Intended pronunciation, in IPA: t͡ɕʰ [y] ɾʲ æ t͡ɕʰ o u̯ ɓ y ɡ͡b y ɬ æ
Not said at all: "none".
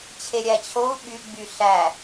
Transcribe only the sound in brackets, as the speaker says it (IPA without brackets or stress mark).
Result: e